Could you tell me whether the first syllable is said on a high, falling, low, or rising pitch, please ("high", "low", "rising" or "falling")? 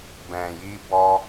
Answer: low